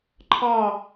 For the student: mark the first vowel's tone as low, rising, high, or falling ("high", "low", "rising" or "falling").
falling